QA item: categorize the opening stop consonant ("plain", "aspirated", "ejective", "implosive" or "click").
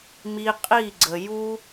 ejective